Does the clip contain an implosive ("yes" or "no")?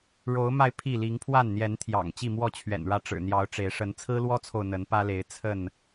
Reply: no